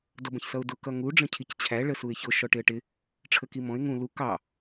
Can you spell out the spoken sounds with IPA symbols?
d ʌ b ə̃ ç s ʌ ʊ̯ d ʊ k ʌ ŋ u ɖ͡ʐ ə̃ cʰ i c t͡ɕʰ æ ɭ ə s u ɪ̯ ç ʊ ʃ ɔ ʈ ɪ ə̯ ʈ ɪ | ʈ͡ʂʰ ə k i m ɔ̃ ɪ̯ ŋ ũ l u k ɑ

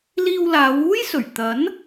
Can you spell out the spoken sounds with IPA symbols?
l iː˧ w l aː˨˧ w uː˥ j s ɵ˨˩ ɥ t̪ ɐ˨˥ n

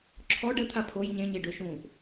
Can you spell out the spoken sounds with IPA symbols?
ǁʰ ɔ ɖ ə t̪ʰ a pʰ o j ɲ ẽ ɲ e ɖ ø ʃ ũː ʔ

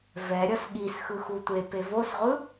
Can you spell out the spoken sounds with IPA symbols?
v ɛ ɾʲ ʌ s ɠ i s x ɯ x u tʷ e p e v o s ʁʷ ɯ

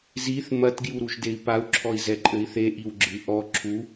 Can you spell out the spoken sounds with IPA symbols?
z i θ m ɐ t ɡ j u ɾ u ʒ d e i̯ p a u̯ ǁʰ ɔ i̯ z ɛ ǃʼ ɘ i̯ θ e ʔ i w ɡ͡ǁ ɨ ʔ ɔ ǁʰ u

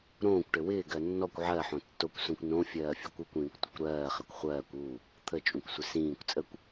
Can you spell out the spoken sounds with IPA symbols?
ɾ õː kʷ ʈ ɘ w ɪː ɡ ɜ nː ɔ kʷ ʕ ɜ ħ õ tː o kʷ s õ kʷ n õ fʲ ɜː fʲ u kʷ u kʷ ĩː kʷ tʷ ə kʷ ɾ ɜː χ ɘ kʷ χʷ ɜː kʷ u | t̪ʰ ə t͡ʃʼ ũ kʷ sʷ ɪ s ĩː kʷ t͡sʼ ə kʷ

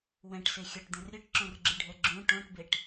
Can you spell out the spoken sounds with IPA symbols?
w ɛ̃ ʈ s e xʲ ʌ ʈ d̪ ẽ r ɾʲ ɯ ʈ ǁ õ r ɡ͡ǁ ɯ ɖʱ ɛ ɡ͡ǁ ũ ʈ õ ʈ b e ʈ

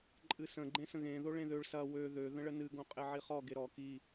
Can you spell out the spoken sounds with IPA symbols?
ǃʼ ɨ s ə̃ ɡ͡ǃ ẽ s ə̃ ɣ ẽ ð o ɭ ẽ ð ø ɭ s ɐ w ø ð ø ð ə̃ ɭ ə n ɨ ɡ õ qʼ e ʕ i χ ɔ ɡ e ɾ ɔ k i

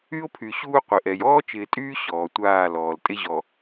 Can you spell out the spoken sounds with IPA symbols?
y˦ o̯ pʰ y˨ ɕ uː˦ qʷ ɪ˨ ʔ ɛ˨ j ɔː˦ t͡ʃ ɪː˨ tʼ yː˦ ɕ ɔː˨ tʷ aː˦˨ l ɔː˨ l tʼ ɪ˦ ʑ ɔ˨

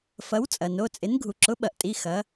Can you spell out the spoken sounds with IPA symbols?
f ɐ˨˥ w t͡sʼ ɐ˩ n o˩˧˩ t͡sʼ ɪ˨˥ n ɡʱ u˩ ǁ ʊ˨˥ ɓ ɐ˩ ʔ tʼ i˩˧˩ x ɐ˨˥

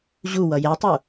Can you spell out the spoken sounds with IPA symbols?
ʑ u w ʌ j ɛ tˤ u

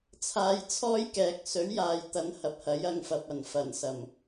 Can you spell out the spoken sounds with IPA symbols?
t͡sʰ aː˧ j t͡sʰ ɔː˥ j k ɛː˨ k̚ s ɵ˨˥ ɥ j aː˨ j t̪ ɐ˨ n h ɐ˨ p̚ h ɐ˨˥ j ɐ˧ ŋ f ɐ˨ p̚ ɐ˨˩ n f ɐ˨˩ n s ɐ˨˩ m

